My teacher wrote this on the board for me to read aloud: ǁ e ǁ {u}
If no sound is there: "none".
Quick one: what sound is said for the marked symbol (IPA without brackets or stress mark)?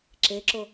o